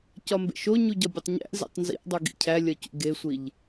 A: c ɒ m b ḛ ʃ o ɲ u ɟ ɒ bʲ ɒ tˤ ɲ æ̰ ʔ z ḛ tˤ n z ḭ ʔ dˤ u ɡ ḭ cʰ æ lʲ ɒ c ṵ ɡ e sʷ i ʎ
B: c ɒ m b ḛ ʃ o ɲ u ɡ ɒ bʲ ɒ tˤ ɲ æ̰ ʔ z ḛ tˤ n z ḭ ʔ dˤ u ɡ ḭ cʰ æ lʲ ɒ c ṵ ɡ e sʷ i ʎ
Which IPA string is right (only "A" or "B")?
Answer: A